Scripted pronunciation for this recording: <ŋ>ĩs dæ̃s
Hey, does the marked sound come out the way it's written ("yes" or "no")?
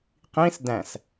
no